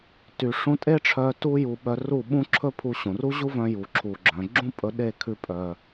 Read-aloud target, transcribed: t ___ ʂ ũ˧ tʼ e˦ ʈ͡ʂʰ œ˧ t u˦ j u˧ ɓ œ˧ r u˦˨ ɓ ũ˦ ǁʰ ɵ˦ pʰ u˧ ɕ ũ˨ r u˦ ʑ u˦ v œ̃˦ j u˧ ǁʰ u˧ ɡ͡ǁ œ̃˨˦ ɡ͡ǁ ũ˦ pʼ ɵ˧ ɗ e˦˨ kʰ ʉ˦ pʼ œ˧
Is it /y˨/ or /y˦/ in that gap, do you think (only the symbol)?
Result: y˨